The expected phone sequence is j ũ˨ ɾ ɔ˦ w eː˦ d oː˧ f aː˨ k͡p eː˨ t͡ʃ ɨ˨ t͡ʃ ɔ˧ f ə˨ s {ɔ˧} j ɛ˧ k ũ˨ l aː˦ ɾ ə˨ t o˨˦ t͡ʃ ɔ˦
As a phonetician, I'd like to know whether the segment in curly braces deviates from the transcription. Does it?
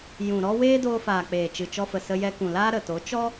yes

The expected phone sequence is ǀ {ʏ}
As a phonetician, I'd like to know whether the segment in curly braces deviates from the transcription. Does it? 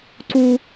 yes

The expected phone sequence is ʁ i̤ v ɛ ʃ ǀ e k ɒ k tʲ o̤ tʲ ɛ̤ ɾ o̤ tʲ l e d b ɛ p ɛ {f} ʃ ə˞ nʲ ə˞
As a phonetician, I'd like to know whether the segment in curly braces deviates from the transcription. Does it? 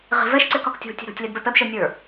yes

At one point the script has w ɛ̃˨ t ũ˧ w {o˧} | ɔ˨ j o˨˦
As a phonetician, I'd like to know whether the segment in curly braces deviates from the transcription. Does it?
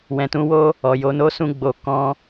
yes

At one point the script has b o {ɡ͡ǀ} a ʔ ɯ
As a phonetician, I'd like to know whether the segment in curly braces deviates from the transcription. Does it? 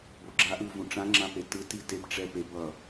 yes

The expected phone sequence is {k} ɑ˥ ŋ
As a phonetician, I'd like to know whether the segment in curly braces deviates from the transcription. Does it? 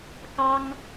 no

